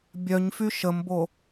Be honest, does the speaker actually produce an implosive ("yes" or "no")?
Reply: no